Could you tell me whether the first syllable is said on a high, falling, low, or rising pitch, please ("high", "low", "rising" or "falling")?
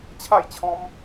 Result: falling